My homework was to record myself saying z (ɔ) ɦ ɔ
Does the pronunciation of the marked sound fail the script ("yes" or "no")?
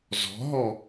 yes